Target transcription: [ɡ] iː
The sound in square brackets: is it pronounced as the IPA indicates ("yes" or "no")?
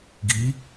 yes